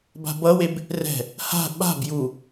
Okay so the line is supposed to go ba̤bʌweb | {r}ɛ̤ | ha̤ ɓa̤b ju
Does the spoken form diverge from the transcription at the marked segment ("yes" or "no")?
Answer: no